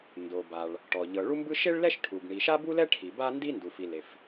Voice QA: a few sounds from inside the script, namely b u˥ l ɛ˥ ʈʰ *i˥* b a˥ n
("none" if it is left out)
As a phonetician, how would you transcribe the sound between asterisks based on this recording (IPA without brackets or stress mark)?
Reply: i˩